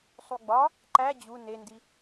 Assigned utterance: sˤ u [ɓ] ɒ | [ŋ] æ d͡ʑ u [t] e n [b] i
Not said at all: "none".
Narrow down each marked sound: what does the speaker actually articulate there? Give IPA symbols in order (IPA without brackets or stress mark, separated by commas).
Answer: ɡ͡b, ǃ, n, d